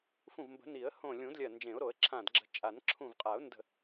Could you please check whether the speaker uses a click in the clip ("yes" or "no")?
yes